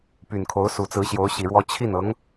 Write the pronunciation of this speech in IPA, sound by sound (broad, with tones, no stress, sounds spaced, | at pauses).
p y˨˩ n kʰ o˧˥ ʊ̯ s u˨˩ t͡s ɹ̩˧˥ ɕ j o˧˥ ʊ̯ ɕ i˨˩ ɻ w ɔ˥ t͡ɕʰ i˥˩ n ɤ˧˥ ŋ